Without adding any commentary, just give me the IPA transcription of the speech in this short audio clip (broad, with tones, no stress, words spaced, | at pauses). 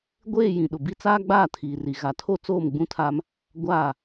ɡʷeː˦˨ jĩ˨ɗʊ˨bi˦ t͡saː˦ɡ͡baː˦˨tʰiː˨ri˨ ɣa˨tʰo˦ t͡soː˦˨mɡ͡bũ˦tʰaː˦m | ɡʷaː˦˨